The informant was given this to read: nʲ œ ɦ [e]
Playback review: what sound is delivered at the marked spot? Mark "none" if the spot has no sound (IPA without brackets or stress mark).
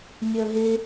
e